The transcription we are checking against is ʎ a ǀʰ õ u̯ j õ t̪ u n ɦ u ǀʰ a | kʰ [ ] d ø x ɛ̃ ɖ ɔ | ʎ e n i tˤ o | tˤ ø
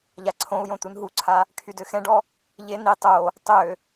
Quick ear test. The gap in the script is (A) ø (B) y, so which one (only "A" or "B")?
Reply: B